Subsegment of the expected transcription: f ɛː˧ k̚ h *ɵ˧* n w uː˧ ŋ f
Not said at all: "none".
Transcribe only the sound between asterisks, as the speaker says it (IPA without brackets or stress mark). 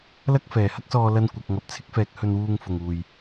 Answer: ɵ˧